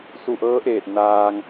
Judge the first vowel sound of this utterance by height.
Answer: high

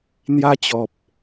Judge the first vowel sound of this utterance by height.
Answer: low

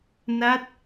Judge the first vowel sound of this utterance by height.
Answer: low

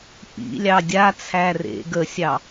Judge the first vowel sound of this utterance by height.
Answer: high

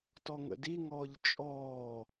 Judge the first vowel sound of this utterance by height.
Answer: mid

